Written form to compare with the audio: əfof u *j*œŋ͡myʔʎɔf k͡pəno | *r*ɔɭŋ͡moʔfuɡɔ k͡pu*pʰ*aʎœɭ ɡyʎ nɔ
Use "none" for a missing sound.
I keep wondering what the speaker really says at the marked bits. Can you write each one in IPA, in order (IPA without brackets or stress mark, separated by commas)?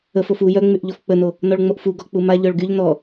j, n, m